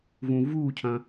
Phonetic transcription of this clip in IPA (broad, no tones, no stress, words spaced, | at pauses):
vũvuːcʰɐ̃